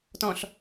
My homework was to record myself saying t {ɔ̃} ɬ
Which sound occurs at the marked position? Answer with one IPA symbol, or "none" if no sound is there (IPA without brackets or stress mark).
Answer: ɔ̃